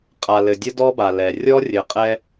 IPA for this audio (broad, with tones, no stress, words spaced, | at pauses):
qʼa˨lɘ˨ dʲə˦dɔ˦ba˨lɛ˨ rʲɔ˦rʲɘ˨qʼɛ˦